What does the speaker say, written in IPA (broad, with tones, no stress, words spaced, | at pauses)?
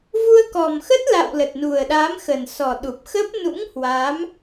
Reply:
vu˧ə̯kɔ˨˩mxə˦˥t̚ la̰˧˨w lə˨˩t̚nu˨˩ə̯ɗa˨˦mxə˨˩n sɔ˨˩ɗu˨˩p̚xə˦˥p̚ nṵ˧˥ŋ hwa˨˦m